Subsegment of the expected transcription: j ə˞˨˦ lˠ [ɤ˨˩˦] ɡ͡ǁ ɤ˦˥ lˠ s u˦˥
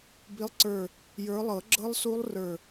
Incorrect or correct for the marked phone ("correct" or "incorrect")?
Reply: correct